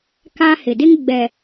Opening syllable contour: high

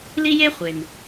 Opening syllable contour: high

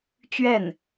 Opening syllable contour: falling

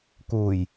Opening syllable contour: low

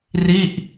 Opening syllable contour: falling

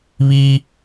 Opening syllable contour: high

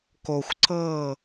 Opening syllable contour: low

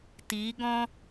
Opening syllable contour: rising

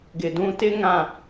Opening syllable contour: low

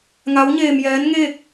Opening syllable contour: rising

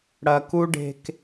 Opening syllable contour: low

